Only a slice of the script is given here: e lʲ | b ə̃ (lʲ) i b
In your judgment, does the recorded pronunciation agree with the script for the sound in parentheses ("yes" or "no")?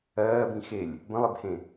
no